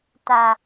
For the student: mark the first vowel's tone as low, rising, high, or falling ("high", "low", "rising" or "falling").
low